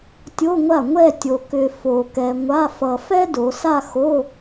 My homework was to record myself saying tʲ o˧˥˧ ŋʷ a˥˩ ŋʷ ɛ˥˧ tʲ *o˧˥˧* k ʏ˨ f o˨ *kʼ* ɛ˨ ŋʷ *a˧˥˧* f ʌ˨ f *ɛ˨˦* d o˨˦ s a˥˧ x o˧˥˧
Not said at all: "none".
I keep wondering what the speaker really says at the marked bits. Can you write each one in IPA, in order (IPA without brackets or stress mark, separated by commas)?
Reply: o˨, k, a˧˥˧, ɛ˥